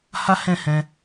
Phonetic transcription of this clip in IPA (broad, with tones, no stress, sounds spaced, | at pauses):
h a˦ h ɛ̃˦˨ h ɛ̃˧